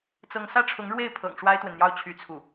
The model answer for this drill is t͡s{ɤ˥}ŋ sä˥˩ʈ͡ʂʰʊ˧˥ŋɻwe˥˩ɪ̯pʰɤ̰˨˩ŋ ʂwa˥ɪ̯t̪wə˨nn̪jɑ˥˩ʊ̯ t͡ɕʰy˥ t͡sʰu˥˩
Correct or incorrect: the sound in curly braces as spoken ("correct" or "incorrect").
incorrect